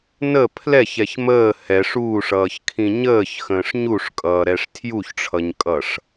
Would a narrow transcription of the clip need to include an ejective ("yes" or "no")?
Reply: yes